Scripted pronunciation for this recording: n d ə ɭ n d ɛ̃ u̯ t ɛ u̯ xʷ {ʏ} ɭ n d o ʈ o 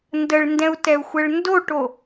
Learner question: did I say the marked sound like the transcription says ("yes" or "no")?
no